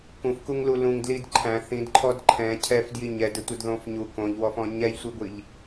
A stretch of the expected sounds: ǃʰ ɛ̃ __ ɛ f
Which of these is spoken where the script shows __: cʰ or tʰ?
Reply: cʰ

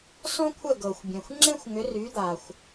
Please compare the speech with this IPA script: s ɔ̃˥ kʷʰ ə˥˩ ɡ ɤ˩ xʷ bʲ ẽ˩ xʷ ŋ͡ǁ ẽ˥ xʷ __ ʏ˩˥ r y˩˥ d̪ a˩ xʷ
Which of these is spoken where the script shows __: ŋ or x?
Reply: ŋ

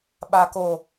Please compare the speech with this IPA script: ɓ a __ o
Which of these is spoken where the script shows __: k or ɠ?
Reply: k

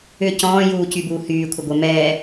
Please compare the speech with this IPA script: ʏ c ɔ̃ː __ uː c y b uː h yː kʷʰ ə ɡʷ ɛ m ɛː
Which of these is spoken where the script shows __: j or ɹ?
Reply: j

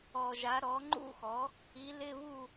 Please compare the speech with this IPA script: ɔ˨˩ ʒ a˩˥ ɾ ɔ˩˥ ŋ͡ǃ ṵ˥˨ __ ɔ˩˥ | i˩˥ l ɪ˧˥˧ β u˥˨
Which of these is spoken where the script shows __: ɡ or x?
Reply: x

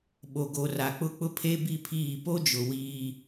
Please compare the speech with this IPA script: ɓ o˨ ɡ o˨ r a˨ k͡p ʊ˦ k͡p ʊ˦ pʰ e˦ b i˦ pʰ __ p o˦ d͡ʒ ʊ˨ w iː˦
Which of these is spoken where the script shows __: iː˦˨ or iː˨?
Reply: iː˦˨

